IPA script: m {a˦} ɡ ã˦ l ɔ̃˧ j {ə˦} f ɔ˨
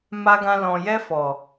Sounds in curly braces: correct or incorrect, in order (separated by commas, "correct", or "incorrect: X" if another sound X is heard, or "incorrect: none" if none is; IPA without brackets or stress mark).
correct, incorrect: ɛ˦